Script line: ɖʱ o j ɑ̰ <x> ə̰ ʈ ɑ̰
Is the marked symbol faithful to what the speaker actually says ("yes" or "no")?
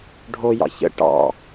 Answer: no